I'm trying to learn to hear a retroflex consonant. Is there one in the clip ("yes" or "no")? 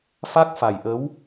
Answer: no